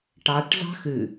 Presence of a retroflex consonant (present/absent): present